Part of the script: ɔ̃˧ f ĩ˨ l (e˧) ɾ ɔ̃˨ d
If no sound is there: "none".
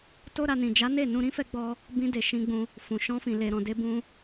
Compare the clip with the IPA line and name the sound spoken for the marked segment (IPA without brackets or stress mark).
e˨